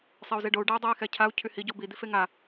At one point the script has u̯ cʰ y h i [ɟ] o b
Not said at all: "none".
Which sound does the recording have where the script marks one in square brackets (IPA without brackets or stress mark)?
ɟ